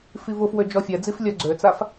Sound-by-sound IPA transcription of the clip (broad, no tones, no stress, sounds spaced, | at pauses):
f i v ʊ f w ø d͡ʒ ɔ fʲ ɛ d͡z i f lʲ œ ɡ͡ǀ ø t͡s a f